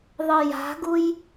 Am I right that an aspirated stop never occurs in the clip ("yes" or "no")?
yes